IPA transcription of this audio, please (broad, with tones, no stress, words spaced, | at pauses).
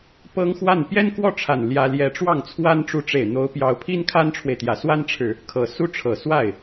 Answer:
pɤ˥ŋxwa˥˩n pjɛ˥nkwɔ˥˩ʈ͡ʂʰa˨˩n ljä˥ ljɛ˧˥ʈ͡ʂwɑ˥˩ŋt͡sʰwa˥n ʈ͡ʂu˧˥ʈ͡ʂe˨˩ɪ̯ n̪o˧˥ʊ̯pjɑ˧˥ʊ̯pʰi˥n kʰa˥nʈ͡ʂʰwe˨ɪ̯t̪jä˨˩ swa˥nʈ͡ʂʰɻ̩˨ | kʰɤ˨˩su˥ʈ͡ʂʰɤ˨˩swa˥˩ɪ̯